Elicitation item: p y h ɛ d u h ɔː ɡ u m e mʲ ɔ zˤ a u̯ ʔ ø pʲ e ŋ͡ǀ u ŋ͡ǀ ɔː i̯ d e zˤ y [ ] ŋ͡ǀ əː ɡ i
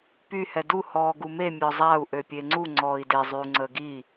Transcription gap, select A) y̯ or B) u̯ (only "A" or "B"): B